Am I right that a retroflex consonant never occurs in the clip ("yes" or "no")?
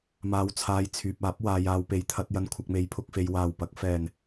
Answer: yes